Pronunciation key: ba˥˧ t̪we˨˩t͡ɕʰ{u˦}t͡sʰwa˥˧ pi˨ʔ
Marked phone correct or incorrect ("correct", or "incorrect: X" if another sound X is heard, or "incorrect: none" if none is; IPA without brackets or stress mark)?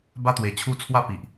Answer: correct